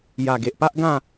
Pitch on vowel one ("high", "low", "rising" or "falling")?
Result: low